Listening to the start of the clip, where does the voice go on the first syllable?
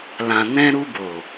low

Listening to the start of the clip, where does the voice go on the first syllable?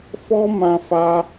high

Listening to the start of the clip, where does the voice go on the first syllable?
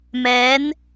rising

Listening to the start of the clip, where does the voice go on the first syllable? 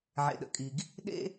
low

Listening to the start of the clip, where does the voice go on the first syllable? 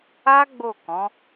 high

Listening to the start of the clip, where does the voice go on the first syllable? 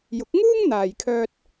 rising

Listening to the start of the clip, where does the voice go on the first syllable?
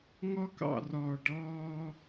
high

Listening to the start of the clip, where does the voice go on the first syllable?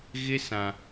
high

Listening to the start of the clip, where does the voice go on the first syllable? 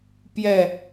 falling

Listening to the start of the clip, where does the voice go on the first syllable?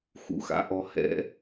rising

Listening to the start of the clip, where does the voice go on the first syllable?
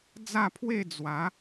falling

